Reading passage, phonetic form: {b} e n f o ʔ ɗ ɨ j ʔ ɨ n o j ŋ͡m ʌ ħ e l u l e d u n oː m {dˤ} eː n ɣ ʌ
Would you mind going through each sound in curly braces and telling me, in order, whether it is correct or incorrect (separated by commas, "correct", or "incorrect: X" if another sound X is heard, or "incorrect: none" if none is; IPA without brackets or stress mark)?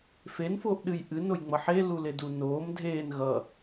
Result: incorrect: f, incorrect: dʱ